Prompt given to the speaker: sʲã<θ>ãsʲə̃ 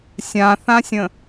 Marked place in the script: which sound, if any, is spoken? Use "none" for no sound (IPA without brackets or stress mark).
θ